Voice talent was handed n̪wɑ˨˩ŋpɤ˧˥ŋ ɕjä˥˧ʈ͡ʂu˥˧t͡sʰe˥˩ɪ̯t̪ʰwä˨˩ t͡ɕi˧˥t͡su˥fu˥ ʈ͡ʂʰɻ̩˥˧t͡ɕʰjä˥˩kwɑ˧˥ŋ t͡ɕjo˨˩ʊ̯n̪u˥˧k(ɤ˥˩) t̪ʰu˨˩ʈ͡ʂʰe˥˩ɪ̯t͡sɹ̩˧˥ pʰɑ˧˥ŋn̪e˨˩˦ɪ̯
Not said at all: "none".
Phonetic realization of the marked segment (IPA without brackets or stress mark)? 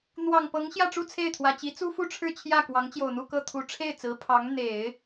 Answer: ɤ˥˩